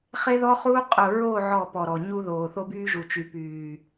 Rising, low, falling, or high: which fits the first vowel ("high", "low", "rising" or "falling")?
high